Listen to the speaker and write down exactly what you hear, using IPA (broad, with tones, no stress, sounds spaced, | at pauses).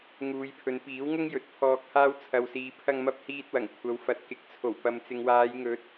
ŋ uː˨˧ j pʰ ɵ˨˧ n p iː˨˥ w ŋ ʊ˥ ŋ j ɵ˨ t̚ pʰ ɔː˧ k̚ h aː˥ w t͡sʰ ɐ˨ w s iː˨ pʰ ɐ˧ ŋ m ɐ˧ p̚ h iː˧ t̚ w ɐ˨˩ ŋ kʷʰ ɐ˨ w f ɐ˨˥ t̚ k ɪ˨ k̚ t͡sʰ o˨˩ w p ɐ˨ m t͡s ɪ˨ ŋ w aː˨˧ j ŋ ɵ˨˥ t̚